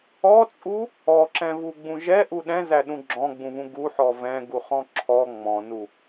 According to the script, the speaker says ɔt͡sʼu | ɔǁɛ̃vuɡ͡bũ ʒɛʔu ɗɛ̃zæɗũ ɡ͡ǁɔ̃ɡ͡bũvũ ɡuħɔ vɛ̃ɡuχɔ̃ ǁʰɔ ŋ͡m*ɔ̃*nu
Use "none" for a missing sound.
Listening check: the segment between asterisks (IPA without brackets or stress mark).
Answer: ɔ̃